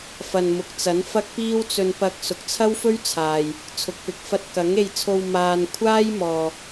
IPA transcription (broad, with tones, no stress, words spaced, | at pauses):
fɐ˨n mʊ˨˥k̚t͡sɐ˨˥nfɐ˥k̚ piː˥wt͡sɵ˧npɐ˧k̚ sʊ˨k̚t͡sʰɐ˥wfɵ˥ɥt͡sʰaː˨j | t͡sʰʊ˨k̚pɪ˨k̚ fɐ˧t̚kɐ˨˥ŋe˧jt͡sʰo˧w maː˧n kʷʰaː˥jmɔː˨